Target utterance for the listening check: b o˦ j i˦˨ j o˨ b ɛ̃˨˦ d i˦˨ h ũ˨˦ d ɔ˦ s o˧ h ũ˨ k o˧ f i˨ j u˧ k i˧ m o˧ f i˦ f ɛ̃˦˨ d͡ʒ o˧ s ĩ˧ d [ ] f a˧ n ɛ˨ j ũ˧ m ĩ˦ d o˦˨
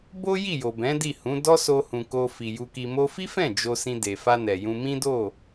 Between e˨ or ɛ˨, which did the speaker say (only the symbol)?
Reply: e˨